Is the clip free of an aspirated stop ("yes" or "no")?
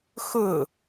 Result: yes